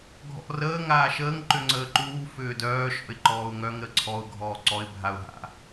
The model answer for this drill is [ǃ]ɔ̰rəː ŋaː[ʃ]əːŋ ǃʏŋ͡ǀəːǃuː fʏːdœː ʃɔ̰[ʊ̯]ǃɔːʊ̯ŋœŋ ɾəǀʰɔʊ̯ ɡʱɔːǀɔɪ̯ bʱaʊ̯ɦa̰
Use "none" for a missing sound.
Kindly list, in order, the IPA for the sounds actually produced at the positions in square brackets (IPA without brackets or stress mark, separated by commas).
ɡʱ, ʃ, ɪ̯